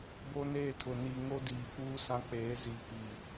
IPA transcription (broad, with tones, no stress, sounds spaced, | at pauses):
b o˦ n eː˦˨ tʰ ʊ˨ n iː˨ ŋ o˦ d iː˨ k͡p uː˦ s ã˦ k͡p eː˨˦ z i˨ p iː˨